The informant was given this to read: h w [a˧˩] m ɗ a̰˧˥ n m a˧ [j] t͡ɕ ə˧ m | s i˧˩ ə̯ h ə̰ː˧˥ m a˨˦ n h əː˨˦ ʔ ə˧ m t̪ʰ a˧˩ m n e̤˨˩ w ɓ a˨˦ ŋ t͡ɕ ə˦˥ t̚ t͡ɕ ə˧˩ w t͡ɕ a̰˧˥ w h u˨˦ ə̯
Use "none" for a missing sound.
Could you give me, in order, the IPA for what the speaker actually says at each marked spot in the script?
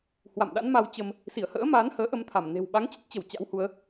a̰˧˨, w

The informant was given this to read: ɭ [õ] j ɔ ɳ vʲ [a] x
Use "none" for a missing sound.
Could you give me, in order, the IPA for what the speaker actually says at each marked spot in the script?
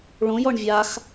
õ, a

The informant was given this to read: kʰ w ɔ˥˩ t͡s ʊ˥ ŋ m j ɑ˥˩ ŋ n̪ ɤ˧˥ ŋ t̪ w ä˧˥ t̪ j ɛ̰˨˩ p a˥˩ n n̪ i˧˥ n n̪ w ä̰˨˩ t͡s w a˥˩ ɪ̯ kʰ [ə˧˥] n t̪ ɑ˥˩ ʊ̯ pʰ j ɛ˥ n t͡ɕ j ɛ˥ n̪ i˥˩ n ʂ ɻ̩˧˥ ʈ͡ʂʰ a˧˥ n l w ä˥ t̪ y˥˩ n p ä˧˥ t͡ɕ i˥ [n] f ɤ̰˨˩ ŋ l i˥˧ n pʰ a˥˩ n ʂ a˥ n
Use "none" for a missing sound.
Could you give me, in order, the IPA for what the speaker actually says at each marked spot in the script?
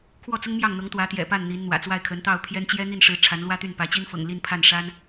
ə˧˥, n

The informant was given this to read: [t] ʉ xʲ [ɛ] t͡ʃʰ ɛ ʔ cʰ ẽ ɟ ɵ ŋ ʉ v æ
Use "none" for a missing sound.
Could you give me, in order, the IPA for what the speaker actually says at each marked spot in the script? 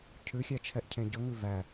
cʰ, æ

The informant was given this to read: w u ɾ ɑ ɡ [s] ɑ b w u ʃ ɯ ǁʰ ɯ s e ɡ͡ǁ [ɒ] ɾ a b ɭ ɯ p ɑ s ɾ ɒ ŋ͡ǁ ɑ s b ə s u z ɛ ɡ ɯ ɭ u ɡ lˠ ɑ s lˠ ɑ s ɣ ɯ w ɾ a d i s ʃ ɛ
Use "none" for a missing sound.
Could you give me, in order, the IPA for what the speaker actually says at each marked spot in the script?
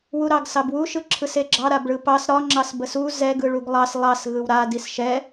s, ɑ

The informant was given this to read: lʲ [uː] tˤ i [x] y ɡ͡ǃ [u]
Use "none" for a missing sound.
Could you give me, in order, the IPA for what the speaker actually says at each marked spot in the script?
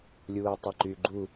uː, ǃ, u

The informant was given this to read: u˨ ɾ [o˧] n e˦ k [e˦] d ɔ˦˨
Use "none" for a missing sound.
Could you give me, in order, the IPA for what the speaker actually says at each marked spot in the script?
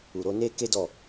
o˧, e˦

